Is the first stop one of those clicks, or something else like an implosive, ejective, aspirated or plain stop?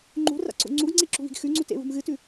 click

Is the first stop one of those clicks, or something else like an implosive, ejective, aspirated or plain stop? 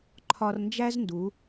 click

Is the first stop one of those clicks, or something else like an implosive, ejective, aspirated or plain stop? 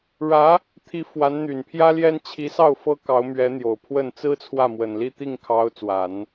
aspirated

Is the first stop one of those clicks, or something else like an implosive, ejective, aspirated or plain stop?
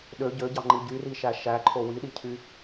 implosive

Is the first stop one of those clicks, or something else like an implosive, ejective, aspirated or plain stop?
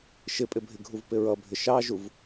ejective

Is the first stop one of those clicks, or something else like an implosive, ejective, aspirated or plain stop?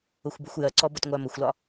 plain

